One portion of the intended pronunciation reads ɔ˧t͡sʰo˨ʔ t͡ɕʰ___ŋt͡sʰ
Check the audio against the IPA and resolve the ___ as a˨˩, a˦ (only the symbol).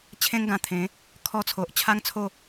a˦